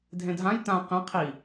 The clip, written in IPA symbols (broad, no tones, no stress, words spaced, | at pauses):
dʱẽdʱãj tã qẽ qʰi